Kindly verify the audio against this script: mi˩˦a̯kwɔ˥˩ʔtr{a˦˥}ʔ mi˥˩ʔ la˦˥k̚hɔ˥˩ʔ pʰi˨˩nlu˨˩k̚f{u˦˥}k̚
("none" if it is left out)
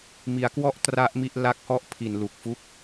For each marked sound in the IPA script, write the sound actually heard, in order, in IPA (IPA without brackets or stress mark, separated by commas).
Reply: a˦˥, u˦˥